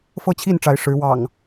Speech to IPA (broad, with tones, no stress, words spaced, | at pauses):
fɤ˥˨t͡ɕʰi˥˨n ʈ͡ʂa˨˦ɪ̯ʂɻ̩˨˦ wɑ̰˨˩ŋ